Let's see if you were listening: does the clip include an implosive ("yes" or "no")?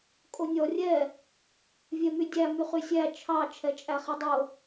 no